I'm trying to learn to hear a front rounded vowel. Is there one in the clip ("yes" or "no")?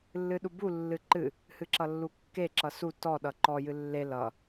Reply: no